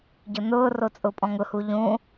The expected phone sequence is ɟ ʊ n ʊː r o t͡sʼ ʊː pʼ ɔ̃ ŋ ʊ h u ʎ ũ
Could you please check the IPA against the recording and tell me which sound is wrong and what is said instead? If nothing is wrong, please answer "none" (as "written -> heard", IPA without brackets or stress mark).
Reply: none